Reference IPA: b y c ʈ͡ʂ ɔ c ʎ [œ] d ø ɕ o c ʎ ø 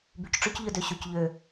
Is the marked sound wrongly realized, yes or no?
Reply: no